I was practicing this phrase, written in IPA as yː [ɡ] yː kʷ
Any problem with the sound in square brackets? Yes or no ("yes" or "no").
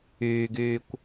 no